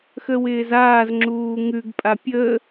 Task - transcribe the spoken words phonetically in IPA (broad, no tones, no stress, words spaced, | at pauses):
xəwɪːzaːzŋ͡ǁuː ŋʉɡpʼa pʲə